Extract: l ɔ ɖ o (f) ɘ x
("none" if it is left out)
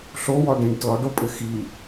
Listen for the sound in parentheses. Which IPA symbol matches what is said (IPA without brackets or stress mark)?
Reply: pʼ